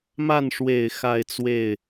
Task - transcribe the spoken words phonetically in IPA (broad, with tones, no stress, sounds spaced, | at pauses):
m a˥˩ n ʂ w e˨˩ ɪ̯ x a˥˧ ɪ̯ t͡s w e˥˩ ɪ̯